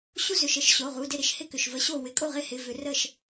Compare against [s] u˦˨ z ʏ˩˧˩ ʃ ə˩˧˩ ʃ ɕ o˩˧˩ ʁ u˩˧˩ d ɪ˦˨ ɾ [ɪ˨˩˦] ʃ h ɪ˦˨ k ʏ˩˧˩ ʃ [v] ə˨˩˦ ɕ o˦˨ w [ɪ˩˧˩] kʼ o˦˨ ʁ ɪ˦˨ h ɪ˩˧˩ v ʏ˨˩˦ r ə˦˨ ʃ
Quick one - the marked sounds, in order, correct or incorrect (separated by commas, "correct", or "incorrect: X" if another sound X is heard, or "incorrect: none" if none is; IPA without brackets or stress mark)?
incorrect: ɕ, correct, correct, incorrect: ɪ˨˩˦